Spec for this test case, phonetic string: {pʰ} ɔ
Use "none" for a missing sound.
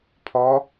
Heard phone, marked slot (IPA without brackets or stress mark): pʰ